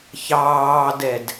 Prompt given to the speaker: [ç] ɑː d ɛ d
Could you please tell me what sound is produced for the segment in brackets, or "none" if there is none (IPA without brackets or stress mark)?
ç